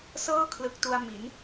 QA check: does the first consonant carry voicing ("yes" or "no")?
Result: no